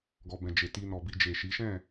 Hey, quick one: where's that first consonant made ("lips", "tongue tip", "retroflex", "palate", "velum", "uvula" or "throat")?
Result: velum